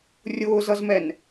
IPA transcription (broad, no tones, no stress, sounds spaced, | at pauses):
rʲ ʊː z ʌ z m ɛ n